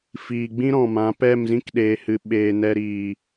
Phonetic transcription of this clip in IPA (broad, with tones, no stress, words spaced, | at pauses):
fiː˨ɡ͡bĩ˦ ɾɔ̃˨mã˨˦ pɛ˦˨mzĩ˦kɗeː˨hɨ˨ ɓeː˨nɛ˧ɾiː˨